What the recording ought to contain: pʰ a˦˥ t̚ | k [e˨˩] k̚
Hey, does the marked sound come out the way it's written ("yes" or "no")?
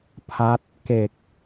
yes